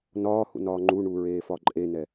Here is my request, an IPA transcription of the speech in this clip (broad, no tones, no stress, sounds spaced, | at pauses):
n ɒː h ṵ n ɒː ŋ͡ǃ u ɳ u ɹ eː f ɒ ǃʼ e n ɛ